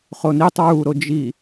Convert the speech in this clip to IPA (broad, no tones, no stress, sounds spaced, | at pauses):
χ o n i tˤ ɹ u ɾ o d͡ʒ i